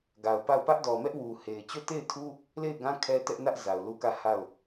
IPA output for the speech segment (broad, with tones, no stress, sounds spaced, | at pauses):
ɡ a˨ ʊ̯ p a˦˨ ʊ̯ p ä˦ ʔ d ɔ˨ m ɛ˦ ʔ w u˨ h e˨ ɪ̯ t͡ɕ o˦˨ t e˦˨ ɪ̯ tʰ u˦ | l e˦˨ ɪ̯ ɡ ã˦ kʰ ɛ˦ t ɛ˦ ʔ n ä˦ ʔ z a˨ ʊ̯ l u˦ k ä˦˨ h a˦˨ ʊ̯